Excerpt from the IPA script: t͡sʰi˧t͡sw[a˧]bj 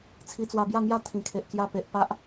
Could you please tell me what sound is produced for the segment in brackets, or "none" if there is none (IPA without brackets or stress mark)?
a˧